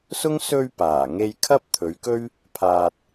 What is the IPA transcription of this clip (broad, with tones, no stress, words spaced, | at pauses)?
sʊ˥ŋ sɵ˧ɥ paː˨˩ŋe˧j kʰɐ˥p̚ t̪ʰɵ˨˥ɥkɵ˥ɥ | pʰaː˨t̚